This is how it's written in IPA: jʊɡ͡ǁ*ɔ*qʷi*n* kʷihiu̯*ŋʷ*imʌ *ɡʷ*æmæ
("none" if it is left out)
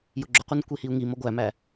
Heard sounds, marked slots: ʊ, n, ŋ, ɡʷ

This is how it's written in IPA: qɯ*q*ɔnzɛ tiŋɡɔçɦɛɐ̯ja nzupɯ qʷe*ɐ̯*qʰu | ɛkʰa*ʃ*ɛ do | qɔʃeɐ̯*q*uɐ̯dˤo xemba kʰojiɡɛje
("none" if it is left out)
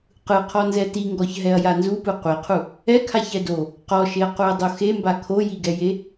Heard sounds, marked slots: qʰ, none, ç, q

